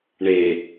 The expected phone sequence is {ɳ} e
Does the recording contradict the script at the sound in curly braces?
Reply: no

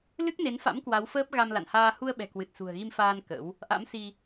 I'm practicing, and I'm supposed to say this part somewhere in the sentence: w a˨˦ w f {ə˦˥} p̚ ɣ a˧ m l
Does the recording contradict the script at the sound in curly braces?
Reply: yes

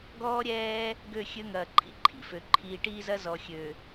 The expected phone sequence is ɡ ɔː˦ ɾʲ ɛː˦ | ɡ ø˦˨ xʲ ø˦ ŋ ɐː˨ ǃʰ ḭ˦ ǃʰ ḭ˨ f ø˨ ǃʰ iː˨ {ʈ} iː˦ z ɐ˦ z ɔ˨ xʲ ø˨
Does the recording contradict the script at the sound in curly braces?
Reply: no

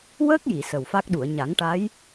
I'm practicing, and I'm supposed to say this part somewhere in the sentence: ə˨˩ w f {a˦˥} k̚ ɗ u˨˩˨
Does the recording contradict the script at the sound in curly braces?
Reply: no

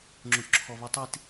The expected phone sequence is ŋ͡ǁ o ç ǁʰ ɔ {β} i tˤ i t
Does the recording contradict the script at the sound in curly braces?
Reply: no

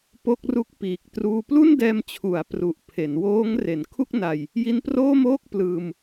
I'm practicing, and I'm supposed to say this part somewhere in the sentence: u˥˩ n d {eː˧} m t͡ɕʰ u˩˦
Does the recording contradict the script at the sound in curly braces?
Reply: yes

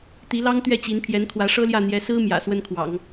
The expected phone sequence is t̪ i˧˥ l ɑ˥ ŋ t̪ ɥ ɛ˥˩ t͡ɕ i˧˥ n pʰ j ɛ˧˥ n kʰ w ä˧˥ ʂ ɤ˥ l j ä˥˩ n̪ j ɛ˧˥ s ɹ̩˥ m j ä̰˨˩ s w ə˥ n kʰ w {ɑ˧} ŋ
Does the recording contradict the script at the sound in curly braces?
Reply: yes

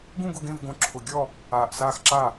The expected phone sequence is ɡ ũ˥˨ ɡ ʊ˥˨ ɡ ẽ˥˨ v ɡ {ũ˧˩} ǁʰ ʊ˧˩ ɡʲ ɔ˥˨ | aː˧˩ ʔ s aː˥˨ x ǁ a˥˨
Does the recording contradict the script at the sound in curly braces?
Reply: yes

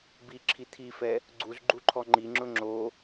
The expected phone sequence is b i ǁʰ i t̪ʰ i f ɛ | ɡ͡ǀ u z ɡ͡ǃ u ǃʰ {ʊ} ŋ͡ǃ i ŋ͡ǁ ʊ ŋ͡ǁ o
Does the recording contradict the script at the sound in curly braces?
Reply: yes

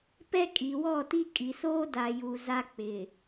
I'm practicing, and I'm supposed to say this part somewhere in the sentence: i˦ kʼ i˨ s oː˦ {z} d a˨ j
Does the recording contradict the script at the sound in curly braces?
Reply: yes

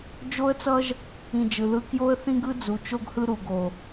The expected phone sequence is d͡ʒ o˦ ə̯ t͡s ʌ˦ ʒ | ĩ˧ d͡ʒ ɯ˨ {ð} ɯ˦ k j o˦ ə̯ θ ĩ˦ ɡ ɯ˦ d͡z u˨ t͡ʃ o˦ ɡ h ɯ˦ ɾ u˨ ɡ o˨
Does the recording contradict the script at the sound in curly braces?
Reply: no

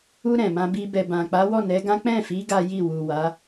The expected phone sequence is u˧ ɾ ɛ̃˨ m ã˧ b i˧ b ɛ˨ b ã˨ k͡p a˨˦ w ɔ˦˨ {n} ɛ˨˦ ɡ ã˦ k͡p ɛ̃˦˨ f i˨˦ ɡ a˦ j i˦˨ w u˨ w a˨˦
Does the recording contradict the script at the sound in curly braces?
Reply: no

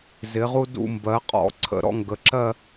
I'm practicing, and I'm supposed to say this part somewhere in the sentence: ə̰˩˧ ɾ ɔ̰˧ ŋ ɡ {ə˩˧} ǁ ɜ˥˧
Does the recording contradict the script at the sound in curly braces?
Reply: no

